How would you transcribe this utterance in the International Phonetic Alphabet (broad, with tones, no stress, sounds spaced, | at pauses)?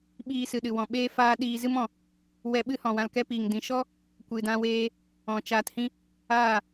ɓ iː˧ s ɨ˨ ɗ ɨ˨ w ɔ̃˨ ɓ eː˦ f aː˦ ɗ iː˧ z ɨ˦ m ɔ̃˨ | w ɛ˧ ɓ ɨ˦ h ɔ̃˨ w ã˧ l k ɛ˦ p iː˨ ŋ d ĩ˨ ʃ ɔ˦ | kʷ ɨ˨ d ã˧ w eː˧ | ɔ̃˨ t͡ʃ aː˧ t h ĩ˦ | aː˦˨